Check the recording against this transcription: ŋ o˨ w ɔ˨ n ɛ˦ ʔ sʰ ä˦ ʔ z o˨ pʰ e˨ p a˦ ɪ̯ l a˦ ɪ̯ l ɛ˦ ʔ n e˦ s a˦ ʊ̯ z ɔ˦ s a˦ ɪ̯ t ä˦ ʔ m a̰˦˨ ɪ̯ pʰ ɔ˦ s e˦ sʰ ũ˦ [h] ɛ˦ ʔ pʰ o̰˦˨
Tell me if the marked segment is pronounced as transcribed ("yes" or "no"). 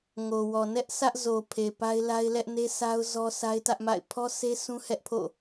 yes